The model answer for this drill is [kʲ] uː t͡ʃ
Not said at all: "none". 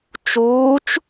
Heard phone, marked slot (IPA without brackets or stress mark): t͡ʃ